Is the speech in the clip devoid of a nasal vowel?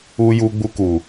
yes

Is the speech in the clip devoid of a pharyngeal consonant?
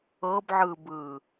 no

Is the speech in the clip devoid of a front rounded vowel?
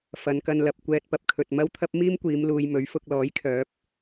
no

